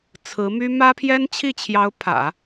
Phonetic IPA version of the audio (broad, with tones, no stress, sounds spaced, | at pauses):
t͡sʰ ɹ̩˧˥ m y˥ m ä˥ pʰ j ɛ˥ n t͡ɕʰ i˥˩ t͡ɕʰ j ɑ˧˥ ʊ̯ pʰ ä̰˨˩˦